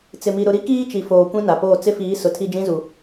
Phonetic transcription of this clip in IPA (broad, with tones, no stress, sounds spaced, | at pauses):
t͡s ɪ˨ m i˨ ɾ ʊ˨ ɾ i˦ k iː˦ t͡ʃ i˨ f oː˨ kʷ ĩ˦ n a˨ p oː˦˨ t͡s ɪ˦ f iː˨˦ s ʊ˨ tʰ i˦ d͡ʒ ĩ˦ z u˨